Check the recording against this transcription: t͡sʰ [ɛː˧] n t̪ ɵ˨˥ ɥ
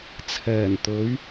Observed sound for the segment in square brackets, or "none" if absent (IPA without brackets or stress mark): ɛː˨˩